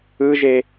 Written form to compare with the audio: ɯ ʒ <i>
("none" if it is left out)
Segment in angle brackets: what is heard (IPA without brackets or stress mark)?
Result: e